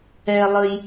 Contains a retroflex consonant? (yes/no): no